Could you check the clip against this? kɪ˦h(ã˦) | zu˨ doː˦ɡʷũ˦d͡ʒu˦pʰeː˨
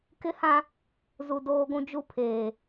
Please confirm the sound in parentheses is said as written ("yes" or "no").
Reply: yes